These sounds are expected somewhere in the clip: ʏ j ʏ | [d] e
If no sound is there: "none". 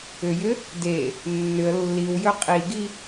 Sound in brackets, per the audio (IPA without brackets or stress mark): d